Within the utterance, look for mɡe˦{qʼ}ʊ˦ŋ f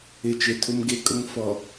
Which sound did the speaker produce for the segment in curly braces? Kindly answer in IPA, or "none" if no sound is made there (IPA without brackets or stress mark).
kʼ